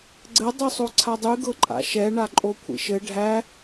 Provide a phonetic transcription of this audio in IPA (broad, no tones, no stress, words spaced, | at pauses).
ɡ͡ǀɘ dˤysˤoǀʰadˤy ɡɤǃʼa̰ʃɛ ɳaǃʼokʷʰḭʃɘ ɖʱæ